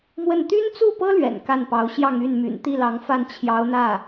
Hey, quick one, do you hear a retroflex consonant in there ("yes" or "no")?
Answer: no